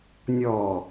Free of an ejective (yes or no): yes